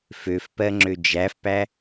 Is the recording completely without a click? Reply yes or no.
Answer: no